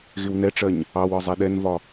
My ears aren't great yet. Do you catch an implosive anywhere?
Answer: yes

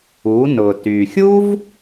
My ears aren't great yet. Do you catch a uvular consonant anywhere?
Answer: no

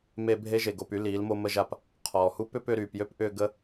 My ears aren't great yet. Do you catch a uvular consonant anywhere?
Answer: yes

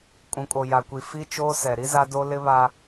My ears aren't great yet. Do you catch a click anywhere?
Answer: no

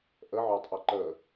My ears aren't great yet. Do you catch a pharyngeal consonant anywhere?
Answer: yes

